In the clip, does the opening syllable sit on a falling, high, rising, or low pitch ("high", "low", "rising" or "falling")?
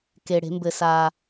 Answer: low